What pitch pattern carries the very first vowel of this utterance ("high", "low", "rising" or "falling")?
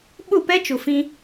falling